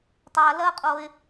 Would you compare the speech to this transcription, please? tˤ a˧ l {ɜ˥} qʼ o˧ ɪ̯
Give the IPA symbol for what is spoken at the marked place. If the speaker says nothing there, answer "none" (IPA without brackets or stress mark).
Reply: ɜ˥